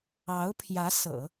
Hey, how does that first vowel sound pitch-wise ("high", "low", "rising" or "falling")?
rising